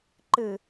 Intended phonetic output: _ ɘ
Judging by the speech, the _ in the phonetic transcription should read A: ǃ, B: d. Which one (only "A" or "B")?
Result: A